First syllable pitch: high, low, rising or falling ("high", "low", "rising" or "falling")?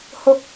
low